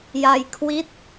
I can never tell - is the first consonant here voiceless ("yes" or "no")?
no